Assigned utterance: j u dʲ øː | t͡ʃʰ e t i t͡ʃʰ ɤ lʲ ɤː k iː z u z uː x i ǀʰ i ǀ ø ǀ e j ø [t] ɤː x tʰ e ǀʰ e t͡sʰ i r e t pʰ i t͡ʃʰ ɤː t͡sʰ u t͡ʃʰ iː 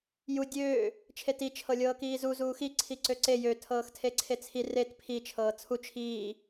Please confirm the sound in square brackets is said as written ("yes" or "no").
no